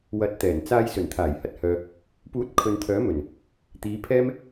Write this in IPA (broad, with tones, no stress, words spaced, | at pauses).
wɐ˧t̚t̪ɛː˨˩n t͡saː˧j sɵ˨˩nt̪ʰaː˨˩jhɐ˨t̚hœː˨ | puː˨˥t̚ kʰɵ˨nt̪ʰœː˨˥mɵ˨˩n | t̪iː˨˧pʰɛː˥m